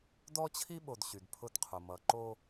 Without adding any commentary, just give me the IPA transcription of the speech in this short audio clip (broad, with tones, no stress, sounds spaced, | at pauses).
d ɔ˦ t͡ɕʰ i˦ ɓ o˨ d ɕ y˨ d pʰ ʊ˦ d qʰ ʊ˨ m ʌ˨ ǃ o˦